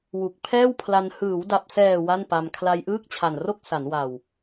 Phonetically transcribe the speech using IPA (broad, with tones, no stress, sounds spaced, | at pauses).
w u˨˩ k̚ pʰ ɛː˥˩ w pʰ l a˧ n h ɯː˩˦ w d a˨˩ p̚ s ɛː˨˩ w a˥˩ n p a˧ m kʰ l a˧ j ʔ ɯː˥˩ k̚ t͡ɕʰ a˨˩ n r o˥˩ k̚ s a˩˦ n w a˨˩ w